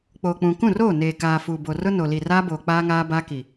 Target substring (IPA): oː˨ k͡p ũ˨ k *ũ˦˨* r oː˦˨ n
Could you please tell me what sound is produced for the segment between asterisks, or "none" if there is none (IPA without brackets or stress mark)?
ũ˦˨